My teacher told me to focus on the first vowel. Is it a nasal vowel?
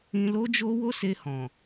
yes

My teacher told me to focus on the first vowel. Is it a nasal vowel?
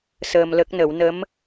no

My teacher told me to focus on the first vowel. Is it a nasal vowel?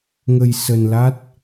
no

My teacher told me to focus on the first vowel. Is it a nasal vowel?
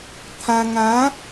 yes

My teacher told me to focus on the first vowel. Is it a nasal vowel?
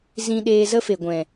yes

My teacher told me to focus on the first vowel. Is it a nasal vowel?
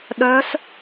no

